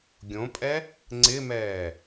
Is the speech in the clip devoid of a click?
no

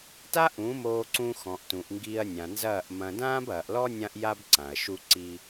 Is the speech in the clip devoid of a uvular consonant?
yes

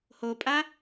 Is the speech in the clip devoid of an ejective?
no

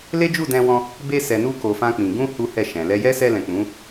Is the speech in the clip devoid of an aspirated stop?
yes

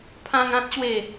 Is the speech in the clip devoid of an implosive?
yes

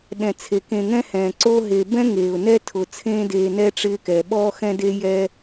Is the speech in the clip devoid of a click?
no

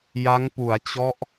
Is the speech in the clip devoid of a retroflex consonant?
yes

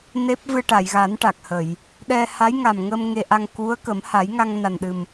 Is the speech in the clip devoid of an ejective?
yes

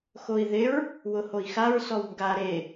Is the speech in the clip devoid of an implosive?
yes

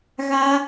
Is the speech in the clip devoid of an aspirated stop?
yes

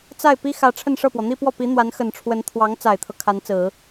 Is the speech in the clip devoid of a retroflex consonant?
no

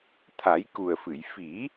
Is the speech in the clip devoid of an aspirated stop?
no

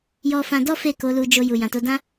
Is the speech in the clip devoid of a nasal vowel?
no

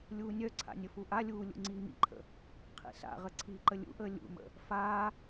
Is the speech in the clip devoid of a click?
no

